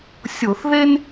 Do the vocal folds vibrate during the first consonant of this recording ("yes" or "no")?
no